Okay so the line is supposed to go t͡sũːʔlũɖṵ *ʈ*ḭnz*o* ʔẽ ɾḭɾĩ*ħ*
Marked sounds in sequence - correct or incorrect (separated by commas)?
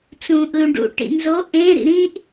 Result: correct, correct, incorrect